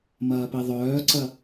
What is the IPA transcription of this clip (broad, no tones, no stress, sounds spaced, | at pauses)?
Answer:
m ɐː p i ðˤ œː ǀ ɐ